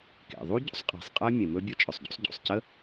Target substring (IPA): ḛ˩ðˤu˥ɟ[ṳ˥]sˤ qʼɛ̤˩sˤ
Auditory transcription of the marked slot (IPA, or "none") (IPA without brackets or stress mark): ṵ˥